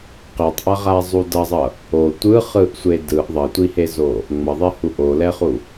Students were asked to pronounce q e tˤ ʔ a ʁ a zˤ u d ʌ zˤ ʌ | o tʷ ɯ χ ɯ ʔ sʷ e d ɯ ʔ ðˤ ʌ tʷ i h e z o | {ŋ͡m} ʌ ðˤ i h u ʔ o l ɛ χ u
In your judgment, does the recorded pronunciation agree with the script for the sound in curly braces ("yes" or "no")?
yes